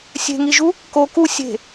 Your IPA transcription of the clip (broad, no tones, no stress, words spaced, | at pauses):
sʲe̤ŋiʒu | ko ku sʲe̤